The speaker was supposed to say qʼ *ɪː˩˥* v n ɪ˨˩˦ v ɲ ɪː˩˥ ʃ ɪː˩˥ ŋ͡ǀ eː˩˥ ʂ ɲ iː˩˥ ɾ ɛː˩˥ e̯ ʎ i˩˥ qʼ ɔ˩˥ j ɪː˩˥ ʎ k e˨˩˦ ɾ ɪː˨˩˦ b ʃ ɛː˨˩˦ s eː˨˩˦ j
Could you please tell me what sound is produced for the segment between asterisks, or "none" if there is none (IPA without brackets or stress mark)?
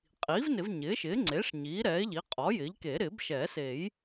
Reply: iː˩˥